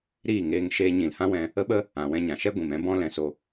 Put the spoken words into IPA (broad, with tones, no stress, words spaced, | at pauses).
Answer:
ɾiː˦˨ŋeː˧ŋ ʃeː˧ɲĩ˨lhã˦wɛ̃˧ | ə˦ɓə˦ | ã˨wɛ̃˧ ɲã˨ʃɛ˦ ɡʷĩ˨m ɛ̃˦bɔ̃˦ lɛ̃˧so˧